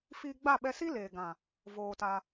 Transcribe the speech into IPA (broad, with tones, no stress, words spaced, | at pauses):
fiː˧ɡ͡ba˦˨ɓɛ˧si˦ leː˨ɡã˨ | voː˧ta˧